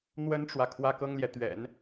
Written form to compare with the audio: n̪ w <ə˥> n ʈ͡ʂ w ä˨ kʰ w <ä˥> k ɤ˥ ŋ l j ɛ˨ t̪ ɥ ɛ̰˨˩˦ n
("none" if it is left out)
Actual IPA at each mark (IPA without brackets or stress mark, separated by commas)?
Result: ə˥, ä˥